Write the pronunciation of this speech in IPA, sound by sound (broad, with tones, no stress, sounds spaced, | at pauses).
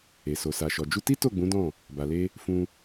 e˨ s o˨ s a˨ ʃ ɔ˨ d͡ʒ u˧ t i˦ t o˦˨ ɡ͡b ũ˨˦ d ɔ̃˦˨ | b a˨ l e˧ | f ũ˧